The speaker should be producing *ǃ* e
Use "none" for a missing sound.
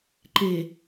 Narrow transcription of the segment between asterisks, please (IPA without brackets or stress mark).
ǃ